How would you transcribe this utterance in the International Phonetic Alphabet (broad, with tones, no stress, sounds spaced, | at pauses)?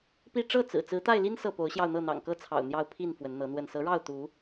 p i˥˨ ʈ͡ʂ ɤ˥˨ t͡s ɹ̩˨˩ t͡s ɹ̩˨˦ t̪ a˥˨ ɪ̯ l i˦ n s ɤ˥˨ p o˨˦ ʊ̯ ɕ j ɑ˧ ʊ̯ n̪ ɤ˥˨ n̪ ɑ̰˨˩ ŋ k ɤ˥˨ t͡sʰ ɑ̰˨˩ ʊ̯ n̪ j ɑ˥˨ ʊ̯ pʰ i˥˨ n f w ə˨˦ n n̪ ɤ˨˦ n̪ w ə˥˨ n s ɤ˨˦ ɻ ɑ˥˨ ʊ̯ t̪ u˨˦